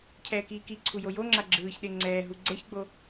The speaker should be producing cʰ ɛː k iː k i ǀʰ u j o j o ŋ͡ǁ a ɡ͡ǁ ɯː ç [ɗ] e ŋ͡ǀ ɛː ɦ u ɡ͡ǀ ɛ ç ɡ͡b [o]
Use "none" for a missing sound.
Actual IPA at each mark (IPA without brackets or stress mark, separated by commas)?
ɗ, o